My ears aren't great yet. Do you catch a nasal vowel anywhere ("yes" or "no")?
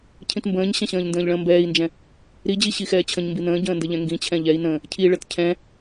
yes